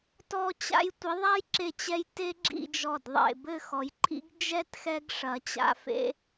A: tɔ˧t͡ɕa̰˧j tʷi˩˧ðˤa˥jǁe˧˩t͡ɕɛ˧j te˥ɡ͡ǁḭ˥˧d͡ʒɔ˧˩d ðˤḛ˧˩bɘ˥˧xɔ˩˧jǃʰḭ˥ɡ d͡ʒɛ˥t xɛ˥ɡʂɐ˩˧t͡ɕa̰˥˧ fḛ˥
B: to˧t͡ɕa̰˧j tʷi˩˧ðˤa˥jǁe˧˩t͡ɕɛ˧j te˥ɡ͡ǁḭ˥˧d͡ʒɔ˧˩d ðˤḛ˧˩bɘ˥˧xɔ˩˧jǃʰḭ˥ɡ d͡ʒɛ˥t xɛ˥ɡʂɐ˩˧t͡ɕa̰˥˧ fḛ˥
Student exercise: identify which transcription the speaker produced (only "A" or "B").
A